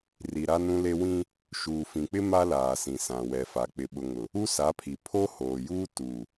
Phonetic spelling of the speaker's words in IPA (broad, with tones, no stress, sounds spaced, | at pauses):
r i˨ ɾ a˦ n ũ˦ l e˦ w ĩ˦ | ʃ uː˨ f ĩ˨ k͡p ɪ˦ m a˦ l aː˨ s ĩ˨ s ã˨ w ɛ˨ f a˨ k͡p ɪ˨ ɓ ʊ˨ ŋ ʊ˨ | u˦ s a˨˦ pʰ i˨ pʰ o˦ h oː˨ j uː˦ t u˨